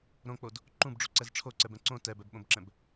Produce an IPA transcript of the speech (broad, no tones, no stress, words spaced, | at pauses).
ɾõk͡pod | ǃũbɖ͡ʐuǀɛz ʈ͡ʂʰoǀɛbɛ̃ ǀõ tɛbɛbɓõbǁɛ̃b